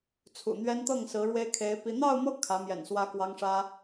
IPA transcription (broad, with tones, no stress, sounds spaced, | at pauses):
t͡sʰ ṵ˨˩ n̪ ɥ ɛ˥ n t̪ ɤ˥˩ ŋ s ɹ̩˧˥ ɻ w e˥ ɪ̯ kʰ e˧˥ ɪ̯ p i˥ n̪ ɑ˥˧ ʊ̯ m ɤ˥˩ kʰ ä˧˥ m j ɛ̰˨˩ n s w ä˥ k w ɑ˥ ŋ ʂ ä˥